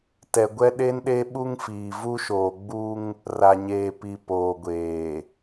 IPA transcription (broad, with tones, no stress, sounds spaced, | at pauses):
t ɛ˨ ɡʷ ɛ˦ ɗ e˦ n ɗ e˦ ɓ u˦ ŋ f iː˨ v u˦ ʃ oː˨ ɡ͡b u˦ ŋ | r a˨ ɲ eː˨ p i˨ p oː˨ ɡʷ eː˨